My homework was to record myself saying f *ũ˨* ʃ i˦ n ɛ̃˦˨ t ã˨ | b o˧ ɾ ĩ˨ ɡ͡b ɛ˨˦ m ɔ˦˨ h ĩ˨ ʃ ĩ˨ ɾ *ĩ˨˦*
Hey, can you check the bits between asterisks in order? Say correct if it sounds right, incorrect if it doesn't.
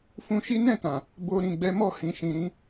incorrect: ũ˧, correct

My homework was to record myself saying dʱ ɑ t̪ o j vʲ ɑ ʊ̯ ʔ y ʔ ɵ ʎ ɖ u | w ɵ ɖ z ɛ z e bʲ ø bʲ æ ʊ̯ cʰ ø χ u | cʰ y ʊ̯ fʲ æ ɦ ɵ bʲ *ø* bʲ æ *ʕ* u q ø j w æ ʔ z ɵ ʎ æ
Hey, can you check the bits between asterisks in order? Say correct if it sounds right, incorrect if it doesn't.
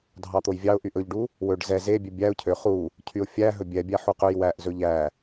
incorrect: ɛ, incorrect: ħ

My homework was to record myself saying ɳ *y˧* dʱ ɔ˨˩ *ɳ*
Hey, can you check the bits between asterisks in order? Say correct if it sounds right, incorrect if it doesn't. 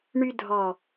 correct, incorrect: none

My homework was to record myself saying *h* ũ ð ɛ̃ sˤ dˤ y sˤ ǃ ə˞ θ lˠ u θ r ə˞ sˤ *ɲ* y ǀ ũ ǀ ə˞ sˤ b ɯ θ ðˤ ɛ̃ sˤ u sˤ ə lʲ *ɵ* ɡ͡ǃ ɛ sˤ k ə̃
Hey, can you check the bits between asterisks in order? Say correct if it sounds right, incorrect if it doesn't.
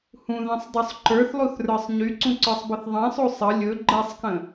correct, correct, correct

